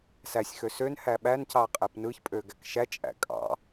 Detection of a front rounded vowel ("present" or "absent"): present